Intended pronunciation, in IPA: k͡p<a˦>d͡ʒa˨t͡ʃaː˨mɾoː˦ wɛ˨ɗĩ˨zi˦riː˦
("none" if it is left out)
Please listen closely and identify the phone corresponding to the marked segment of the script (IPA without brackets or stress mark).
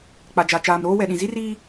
a˨